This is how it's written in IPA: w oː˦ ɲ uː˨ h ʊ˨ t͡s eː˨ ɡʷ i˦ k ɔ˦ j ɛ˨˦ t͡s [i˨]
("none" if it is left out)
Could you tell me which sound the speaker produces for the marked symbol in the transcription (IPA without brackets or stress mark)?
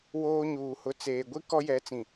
ĩ˨